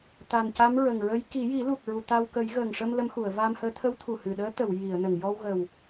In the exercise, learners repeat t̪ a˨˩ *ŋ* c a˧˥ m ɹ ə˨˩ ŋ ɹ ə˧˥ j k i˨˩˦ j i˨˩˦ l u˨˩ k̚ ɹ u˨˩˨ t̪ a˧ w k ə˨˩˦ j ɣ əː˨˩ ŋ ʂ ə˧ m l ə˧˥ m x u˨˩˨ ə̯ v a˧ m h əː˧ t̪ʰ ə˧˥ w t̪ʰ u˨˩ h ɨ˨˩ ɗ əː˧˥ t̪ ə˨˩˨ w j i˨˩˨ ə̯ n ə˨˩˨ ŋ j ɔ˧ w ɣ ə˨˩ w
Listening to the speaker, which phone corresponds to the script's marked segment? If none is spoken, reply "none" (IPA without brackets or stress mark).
n